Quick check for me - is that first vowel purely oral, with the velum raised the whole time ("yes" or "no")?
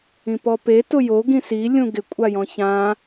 no